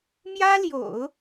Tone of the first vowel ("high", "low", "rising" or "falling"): high